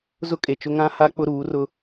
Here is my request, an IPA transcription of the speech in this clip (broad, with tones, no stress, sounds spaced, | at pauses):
z ʊ˦ kʼ e˨ t͡ʃ ʊ˦ ŋ ã˦ h a˦ k͡p ʊ˦ ɾ uː˨˦ r ʊ˦